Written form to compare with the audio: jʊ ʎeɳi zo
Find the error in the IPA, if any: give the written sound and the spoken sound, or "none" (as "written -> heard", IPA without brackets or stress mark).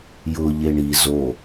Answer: none